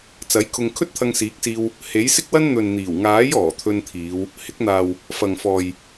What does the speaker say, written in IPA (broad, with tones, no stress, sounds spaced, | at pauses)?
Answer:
t͡s ɐ˨˥ j kʰ ʊ˧ ŋ kʰ ɵ˥ t̚ t̪ʰ ɐ˧ ŋ s iː˨˥ k̚ s iː˧ w | h e˨˥ j s ɪ˥ k̚ w ɐ˥ n n̪ ɵ˨ n n̪ iː˨˩ w ŋ aː˨˥ j ɔː˨˩ t̪ʰ ɵ˧ n t̪ʰ iː˨˧ w | h ɪ˨˥ k̚ n̪ aː˨ w | f ɐ˨ ŋ f ɔː˨ j